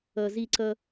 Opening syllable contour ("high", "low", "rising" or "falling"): low